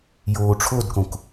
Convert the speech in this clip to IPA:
j oː ʈ͡ʂʰ o d k õ k

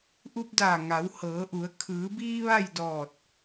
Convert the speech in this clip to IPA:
ʔ u˧ p̚ d aː˧˩ ŋ a˩˧ w h ɤː˩˧ ʔ u˩˧ ə̯ kʰ ɯː˩˧ b iː˧ ʋ a˥˨ j d ɔː˧˩ t̚

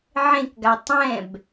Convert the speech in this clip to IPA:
ʕ ẽ k ɡ a tˤ ɛ̃ b

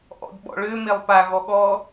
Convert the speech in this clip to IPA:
ʔ ɔ̰ d ɓ ɔ̰ ɭ ø m e lˠ p a ɣ ɔ ɠ ɔ

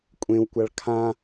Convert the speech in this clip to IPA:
kʷʼ ẽ w kʷ a ɭ kʰ ã

